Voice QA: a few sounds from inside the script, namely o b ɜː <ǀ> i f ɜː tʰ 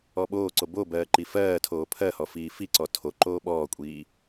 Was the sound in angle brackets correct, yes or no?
no